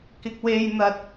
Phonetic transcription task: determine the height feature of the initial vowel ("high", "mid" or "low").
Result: high